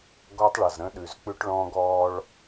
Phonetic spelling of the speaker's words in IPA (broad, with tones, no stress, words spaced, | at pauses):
ɡɔ˦tˤɭʌ˨zɾə̃˦ɗʉ˨z k͡pʉ˦ʈɭɔ̃˦ ɡɔ˦ɭ